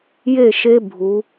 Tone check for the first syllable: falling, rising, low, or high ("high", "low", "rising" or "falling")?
falling